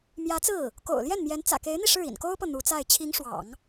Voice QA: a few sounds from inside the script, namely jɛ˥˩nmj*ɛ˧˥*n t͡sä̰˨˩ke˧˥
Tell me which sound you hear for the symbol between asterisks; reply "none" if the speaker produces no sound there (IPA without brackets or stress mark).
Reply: ɛ˧˥